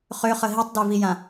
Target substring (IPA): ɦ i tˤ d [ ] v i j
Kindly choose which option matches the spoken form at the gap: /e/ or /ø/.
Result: e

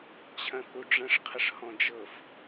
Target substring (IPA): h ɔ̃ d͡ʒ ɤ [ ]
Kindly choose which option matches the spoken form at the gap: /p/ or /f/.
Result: f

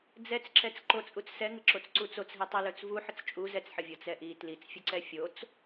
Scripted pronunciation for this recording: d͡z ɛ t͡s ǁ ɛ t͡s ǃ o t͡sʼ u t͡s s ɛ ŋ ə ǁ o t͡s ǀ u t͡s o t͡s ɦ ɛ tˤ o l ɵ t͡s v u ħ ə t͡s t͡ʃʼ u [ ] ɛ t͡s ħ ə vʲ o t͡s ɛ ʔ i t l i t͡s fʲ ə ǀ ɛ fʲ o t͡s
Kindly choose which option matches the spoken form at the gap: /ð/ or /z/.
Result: z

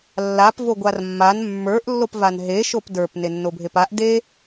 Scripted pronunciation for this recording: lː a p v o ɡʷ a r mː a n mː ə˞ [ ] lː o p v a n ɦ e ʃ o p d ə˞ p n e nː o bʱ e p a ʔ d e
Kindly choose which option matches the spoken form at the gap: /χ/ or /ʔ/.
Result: ʔ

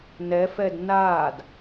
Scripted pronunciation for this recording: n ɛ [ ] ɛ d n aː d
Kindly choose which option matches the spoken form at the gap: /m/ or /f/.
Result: f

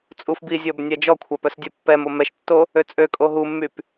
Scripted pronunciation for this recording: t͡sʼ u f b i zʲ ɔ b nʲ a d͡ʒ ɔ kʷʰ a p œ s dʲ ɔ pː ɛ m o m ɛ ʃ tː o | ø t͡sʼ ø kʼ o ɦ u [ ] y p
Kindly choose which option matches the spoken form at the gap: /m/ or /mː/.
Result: mː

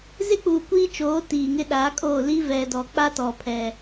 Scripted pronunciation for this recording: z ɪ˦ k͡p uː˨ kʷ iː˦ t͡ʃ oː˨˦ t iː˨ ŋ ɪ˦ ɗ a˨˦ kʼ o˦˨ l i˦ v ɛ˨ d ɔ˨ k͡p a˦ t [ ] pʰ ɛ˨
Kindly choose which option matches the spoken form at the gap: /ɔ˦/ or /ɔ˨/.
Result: ɔ˨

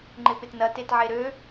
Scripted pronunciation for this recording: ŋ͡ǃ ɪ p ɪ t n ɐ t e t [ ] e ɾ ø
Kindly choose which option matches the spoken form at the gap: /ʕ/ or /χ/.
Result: ʕ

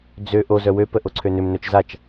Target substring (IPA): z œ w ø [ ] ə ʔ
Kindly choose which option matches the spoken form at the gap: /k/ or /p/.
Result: p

